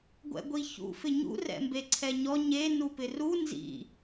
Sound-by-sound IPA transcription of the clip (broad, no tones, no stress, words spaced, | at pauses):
ɡʷɛ̰ɡʷiçṵ fɪɲṵ rɛ̰mbeǀʰɛɲɔ ɲe nupɪru nzḭ